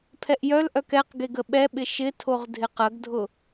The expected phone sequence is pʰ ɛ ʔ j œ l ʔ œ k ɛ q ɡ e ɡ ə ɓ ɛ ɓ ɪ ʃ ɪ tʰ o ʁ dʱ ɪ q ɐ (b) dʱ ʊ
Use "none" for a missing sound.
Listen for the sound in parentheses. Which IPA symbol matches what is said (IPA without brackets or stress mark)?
ɡ